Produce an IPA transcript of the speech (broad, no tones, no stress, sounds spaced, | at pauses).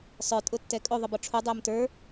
sˤ ə˞ tʼ ʊ tː ɛ kʼ ʊ ðˤ ə b ɒ ʈ͡ʂʰ u dˤ ʏː m t ə˞